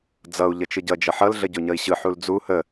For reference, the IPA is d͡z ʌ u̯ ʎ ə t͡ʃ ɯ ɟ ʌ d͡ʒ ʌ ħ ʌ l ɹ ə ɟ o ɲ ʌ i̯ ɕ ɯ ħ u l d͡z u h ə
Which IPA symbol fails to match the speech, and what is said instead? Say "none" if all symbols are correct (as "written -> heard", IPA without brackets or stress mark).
ɹ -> ɮ